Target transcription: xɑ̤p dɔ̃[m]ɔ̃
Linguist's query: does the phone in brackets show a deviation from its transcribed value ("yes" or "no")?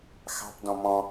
no